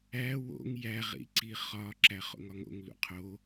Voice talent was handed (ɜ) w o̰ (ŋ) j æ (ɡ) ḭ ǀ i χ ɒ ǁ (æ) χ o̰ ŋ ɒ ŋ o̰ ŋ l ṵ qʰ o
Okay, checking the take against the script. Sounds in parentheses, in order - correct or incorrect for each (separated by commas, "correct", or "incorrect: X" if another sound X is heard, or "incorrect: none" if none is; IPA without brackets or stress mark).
incorrect: æ, correct, incorrect: ʁ, correct